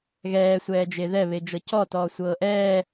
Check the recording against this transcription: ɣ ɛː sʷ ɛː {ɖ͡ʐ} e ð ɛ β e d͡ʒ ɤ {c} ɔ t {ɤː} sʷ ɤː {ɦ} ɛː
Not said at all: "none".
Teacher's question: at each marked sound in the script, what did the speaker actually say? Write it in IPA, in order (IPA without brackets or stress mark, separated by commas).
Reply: d͡ʒ, c, ɔː, ʔ